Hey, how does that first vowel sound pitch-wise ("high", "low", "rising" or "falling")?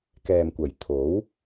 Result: low